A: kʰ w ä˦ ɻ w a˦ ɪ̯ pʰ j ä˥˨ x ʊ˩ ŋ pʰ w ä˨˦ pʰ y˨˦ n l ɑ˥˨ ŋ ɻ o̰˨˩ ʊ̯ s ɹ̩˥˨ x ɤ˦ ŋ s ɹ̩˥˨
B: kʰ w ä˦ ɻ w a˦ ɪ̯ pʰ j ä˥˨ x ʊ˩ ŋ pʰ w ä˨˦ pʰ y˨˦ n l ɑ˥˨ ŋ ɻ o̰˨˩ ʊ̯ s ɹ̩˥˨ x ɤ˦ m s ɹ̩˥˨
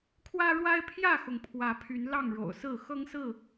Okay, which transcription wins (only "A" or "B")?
A